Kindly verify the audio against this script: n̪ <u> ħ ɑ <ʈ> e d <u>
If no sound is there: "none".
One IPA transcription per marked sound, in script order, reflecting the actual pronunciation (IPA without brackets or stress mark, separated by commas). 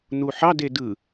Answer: u, d, ɯ